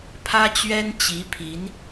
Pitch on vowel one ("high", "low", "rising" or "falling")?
high